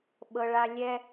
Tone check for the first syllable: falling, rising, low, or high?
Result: low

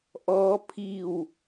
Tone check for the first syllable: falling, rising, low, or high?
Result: rising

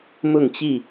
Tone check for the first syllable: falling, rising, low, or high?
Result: falling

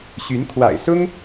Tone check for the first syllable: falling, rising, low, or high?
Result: rising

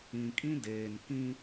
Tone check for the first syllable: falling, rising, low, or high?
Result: low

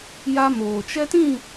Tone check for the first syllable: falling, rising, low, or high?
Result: high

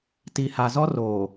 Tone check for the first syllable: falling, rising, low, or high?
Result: low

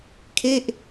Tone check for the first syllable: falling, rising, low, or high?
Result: falling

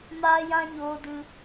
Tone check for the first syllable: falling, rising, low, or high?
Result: high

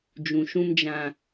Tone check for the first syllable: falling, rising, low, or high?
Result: low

